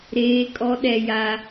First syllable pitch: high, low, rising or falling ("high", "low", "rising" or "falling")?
high